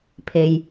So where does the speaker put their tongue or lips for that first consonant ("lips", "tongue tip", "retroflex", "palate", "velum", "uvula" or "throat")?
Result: lips